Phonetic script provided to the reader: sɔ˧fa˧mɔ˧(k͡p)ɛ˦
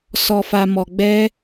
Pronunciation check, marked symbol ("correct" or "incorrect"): incorrect